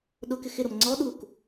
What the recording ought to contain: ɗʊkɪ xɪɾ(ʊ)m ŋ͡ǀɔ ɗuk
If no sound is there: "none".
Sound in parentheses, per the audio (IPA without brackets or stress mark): ʊ